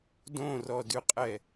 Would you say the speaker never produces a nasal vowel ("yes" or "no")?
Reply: no